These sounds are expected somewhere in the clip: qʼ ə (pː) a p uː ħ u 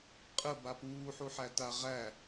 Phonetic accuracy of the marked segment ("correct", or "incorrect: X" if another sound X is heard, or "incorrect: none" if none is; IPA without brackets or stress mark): incorrect: b